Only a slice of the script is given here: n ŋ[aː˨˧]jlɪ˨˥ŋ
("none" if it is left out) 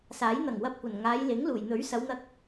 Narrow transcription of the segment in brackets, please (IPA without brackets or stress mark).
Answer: aː˨˧